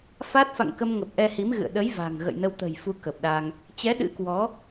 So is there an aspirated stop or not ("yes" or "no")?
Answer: no